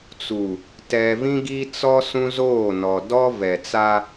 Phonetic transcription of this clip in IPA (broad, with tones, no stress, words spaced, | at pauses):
t͡su˨ | tɛ˨vĩ˦ ɡi˦t͡sɔ˦ sũ˦zoː˦˨nɔ˨ dɔ˦ vɛ˨t͡sa˦